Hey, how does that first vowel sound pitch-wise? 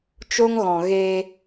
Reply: high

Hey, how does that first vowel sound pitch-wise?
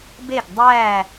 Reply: falling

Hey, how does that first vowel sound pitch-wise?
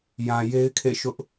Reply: low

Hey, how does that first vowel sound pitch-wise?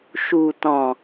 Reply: low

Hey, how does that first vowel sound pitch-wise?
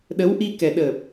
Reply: rising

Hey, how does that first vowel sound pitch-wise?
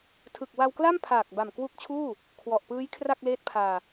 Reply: low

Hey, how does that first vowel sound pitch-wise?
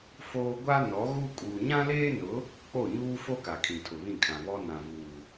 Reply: high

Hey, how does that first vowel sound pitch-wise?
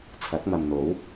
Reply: rising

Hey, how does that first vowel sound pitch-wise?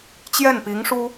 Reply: falling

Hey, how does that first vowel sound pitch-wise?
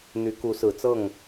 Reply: rising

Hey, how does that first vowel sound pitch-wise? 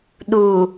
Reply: low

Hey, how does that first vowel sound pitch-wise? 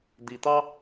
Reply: low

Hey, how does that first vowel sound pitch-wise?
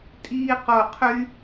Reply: high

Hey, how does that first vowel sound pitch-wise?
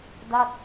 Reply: falling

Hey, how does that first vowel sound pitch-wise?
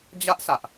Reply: high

